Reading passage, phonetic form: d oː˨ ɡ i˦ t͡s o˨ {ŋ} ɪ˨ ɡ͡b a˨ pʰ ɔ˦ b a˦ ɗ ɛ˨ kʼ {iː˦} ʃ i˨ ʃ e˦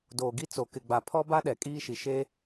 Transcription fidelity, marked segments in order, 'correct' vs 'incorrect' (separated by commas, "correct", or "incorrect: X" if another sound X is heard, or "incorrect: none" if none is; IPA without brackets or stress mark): incorrect: k, correct